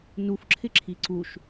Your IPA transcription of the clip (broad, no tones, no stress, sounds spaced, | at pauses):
n u f ǁʰ ɪ ǁʰ i ǀ u ʃ